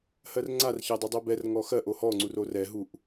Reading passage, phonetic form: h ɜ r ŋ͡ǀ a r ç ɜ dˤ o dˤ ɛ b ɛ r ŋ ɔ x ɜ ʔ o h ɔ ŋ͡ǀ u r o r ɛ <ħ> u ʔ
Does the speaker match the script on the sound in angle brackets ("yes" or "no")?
no